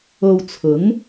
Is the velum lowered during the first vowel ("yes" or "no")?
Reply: no